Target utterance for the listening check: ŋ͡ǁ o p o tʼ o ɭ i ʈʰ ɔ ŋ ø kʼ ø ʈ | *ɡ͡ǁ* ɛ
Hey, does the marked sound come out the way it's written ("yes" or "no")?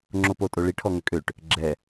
yes